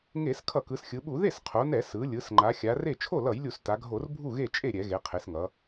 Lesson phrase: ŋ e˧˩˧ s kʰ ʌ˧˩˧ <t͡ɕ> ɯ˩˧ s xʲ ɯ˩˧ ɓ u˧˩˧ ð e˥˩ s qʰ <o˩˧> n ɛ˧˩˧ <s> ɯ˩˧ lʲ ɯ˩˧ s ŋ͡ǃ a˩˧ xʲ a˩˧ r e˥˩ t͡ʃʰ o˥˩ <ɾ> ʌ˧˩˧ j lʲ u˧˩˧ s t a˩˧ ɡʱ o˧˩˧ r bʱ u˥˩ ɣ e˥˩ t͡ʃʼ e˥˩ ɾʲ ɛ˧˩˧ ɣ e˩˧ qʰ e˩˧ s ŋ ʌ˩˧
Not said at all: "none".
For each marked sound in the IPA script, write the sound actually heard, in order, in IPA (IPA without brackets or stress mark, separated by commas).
k, o˩˧, s, l